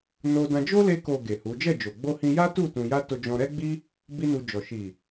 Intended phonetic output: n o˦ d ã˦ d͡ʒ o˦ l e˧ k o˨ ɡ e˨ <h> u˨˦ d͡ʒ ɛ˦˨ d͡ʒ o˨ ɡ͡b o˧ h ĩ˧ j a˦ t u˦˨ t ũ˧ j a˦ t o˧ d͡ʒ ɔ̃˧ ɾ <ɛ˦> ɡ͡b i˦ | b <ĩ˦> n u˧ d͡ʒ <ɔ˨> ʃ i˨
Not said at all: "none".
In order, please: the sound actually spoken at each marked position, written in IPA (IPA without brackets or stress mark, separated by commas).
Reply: h, ɛ˦, i˦, ɔ˨